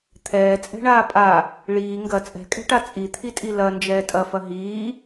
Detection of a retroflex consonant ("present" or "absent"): present